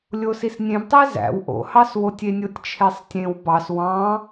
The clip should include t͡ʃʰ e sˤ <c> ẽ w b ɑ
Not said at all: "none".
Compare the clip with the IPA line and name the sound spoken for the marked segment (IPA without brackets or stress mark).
tʲ